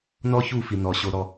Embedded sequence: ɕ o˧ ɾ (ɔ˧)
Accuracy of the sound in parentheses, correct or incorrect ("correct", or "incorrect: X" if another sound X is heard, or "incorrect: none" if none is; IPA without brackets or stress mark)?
correct